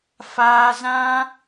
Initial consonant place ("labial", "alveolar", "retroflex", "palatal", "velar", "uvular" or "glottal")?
labial